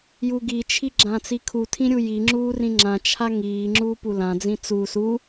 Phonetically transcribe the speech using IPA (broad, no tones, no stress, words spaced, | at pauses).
juɡit͡ʃʰi ɡ͡ǁãt͡sikʰutʰĩ ɾʲujiŋ͡ǁuː rĩŋ͡ǁãt͡ʃʰa ŋiːŋ͡ǁuː pulãd͡zĩ t͡su su